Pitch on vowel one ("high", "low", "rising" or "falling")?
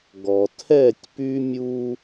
low